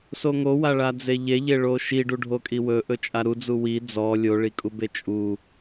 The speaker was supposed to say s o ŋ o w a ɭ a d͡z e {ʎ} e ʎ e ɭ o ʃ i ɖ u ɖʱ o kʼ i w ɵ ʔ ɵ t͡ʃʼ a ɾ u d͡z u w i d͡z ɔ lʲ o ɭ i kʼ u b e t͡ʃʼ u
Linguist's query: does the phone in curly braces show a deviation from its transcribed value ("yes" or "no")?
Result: no